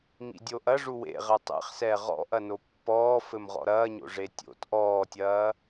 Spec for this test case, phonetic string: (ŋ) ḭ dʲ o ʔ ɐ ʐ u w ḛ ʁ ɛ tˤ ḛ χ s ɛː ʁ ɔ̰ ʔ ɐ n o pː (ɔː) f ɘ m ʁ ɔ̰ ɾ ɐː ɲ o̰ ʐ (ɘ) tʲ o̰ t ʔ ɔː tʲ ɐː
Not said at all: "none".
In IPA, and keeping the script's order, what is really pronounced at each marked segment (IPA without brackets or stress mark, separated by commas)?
ŋ, ɔː, e